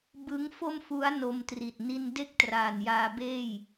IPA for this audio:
b ɯ˦˥ ŋ f o˥˩ m f u˦˥ a̯ n o˧ m t r i˨˩ t̚ n i˥˩ n d e˥˩ k̚ t r aː˨˩ n j aː˧ b eː˥˩ j

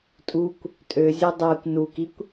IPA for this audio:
tʼ u kʷ | tʼ ø zʲ ø dˤ ɜ kʷ n u k i kʷ

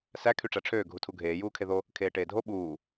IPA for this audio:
s æ kʰ y ʈ͡ʂ æ ʈ͡ʂʰ øː ɡʱ u tʰ u ɡʱ eː j uː kʰ e ð o | kʰ eː ʈ eː dʱ o ɓ uː

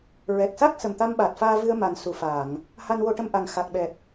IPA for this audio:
ɹ ɛ˨˩ k̚ s a˦˥ k̚ s ə˨˩ m t̪ a˧ m ɓ aː˨˩ t̚ f aː˧ v ɨ˧ ə̯ m a˨˩ n s u˨˩˨ f aː˨˩˨ ŋ | h a˧ n w o˧ ʈ ə˧ m ʔ a˨˩ ŋ x a˨˩ k̚ ɓ ɛ˨˩ p̚

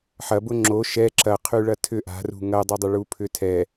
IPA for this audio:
ħ ɐ b ʊ ŋ͡ǁ o ʃ ɛ ǁ ɐ qʰ y ɭ ɐ tʰ ʏ ʔ a̤ r ṳ ŋ ɐ dˤ ʏ dˤ ɐ ɭ u pʰ ʏ tʰ ɛ

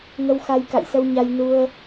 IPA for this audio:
ŋ ə˧ w x a˧ j k a̰˧˨ j s ə˧ w ɲ a˧ j n u˧ ə̯

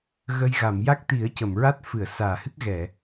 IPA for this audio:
ɣ ə˧ j ɣ a˨˩˨ m j a˦˥ k̚ t̪ i˨˩˦ ə̯ c ə˨˩˨ m ɹ a˦˥ t̚ f ɨ˨˩˨ ə̯ s aː˨˩˨ h ɨ˦˥ k̚ ɣ ɛ˨˩˨

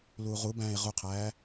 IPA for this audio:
l uː ʁ u b æ̃ː e̯ ʁ u qʰ æː

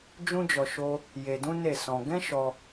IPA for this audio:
d͡ʒ ũ˦ d͡ʒ ɔ˧ ʃ o˦ | j e˧ d ũ˦ n e˦˨ s ɔ̃˧ ɡ ɛ̃˦ ʃ ɔ˧

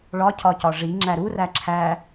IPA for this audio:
ɭ ɒ cʰ ɒ c ɒ ʐ i ŋ͡ǁ æ ɾ u r æ ǁʰ æ

